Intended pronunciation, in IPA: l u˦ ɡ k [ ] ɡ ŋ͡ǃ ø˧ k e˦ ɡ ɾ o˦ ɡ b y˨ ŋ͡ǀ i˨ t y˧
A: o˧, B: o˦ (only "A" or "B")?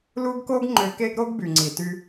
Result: B